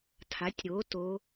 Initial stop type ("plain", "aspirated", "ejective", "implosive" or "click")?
aspirated